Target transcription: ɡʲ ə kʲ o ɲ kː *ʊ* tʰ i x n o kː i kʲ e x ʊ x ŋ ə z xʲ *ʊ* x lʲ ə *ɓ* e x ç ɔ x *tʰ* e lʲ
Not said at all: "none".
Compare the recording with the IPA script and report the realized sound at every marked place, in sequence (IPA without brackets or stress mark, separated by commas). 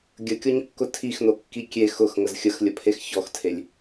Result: ʊ, ə, pʰ, tʰ